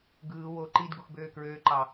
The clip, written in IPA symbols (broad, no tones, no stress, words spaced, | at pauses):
ɡɯː wo ǃidɡux bøːkɹøːǃɑ